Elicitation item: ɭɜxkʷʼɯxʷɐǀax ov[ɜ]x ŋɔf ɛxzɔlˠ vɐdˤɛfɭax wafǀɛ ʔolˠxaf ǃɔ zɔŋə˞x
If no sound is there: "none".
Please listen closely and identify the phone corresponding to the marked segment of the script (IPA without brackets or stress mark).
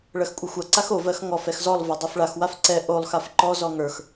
ɜ